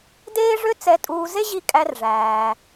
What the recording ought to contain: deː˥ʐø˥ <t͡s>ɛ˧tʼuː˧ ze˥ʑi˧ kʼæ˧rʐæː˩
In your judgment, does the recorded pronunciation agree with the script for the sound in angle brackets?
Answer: yes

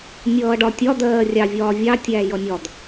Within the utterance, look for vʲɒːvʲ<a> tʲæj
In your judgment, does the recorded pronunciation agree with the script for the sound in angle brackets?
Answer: no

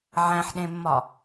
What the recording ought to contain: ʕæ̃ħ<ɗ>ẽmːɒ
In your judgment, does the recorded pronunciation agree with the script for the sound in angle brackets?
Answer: yes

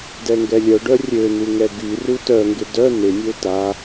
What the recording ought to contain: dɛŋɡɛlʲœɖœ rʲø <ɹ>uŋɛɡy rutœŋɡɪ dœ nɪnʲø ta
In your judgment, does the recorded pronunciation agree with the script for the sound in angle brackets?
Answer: no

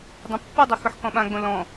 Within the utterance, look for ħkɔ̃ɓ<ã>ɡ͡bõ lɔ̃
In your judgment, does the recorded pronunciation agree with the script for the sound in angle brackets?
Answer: yes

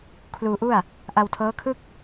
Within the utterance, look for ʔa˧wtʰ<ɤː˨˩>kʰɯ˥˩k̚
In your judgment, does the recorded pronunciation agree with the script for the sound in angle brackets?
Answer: no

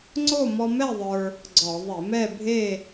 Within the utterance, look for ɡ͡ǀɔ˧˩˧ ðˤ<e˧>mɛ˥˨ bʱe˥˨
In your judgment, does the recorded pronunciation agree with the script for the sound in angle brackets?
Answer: no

